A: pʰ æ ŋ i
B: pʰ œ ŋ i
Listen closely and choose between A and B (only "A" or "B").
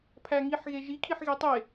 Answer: A